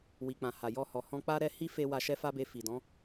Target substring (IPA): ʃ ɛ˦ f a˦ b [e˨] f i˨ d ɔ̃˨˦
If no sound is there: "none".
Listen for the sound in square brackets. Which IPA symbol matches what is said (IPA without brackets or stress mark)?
e˧